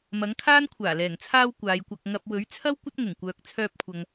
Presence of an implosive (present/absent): absent